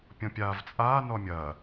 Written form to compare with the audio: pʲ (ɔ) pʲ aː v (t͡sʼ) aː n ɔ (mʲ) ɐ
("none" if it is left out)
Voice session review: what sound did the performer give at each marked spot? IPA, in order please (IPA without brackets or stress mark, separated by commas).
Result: ɔ̃, t͡sʼ, mʲ